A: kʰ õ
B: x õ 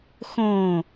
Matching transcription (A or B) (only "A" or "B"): B